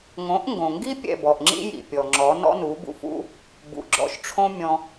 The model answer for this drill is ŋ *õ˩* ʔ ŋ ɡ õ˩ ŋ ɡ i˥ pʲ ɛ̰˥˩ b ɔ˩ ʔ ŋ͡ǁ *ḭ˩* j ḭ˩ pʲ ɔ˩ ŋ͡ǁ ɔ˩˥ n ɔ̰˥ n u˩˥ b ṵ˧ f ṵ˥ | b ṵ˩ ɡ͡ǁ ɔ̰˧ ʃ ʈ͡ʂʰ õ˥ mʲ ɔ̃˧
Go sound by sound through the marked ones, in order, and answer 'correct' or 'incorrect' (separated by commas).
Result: incorrect, incorrect